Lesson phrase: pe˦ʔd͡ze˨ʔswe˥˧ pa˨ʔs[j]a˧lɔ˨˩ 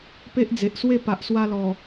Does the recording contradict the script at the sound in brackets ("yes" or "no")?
yes